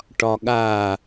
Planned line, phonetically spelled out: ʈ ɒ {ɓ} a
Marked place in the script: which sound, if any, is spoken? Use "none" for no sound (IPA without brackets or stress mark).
ɠ